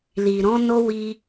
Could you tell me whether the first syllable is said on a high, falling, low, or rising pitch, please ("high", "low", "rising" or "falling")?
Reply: low